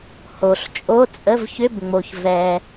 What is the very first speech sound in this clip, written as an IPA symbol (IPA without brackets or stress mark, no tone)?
h